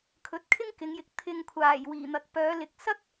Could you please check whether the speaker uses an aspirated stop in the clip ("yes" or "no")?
yes